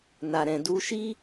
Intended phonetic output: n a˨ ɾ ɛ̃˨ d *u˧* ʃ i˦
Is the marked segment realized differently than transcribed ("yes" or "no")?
no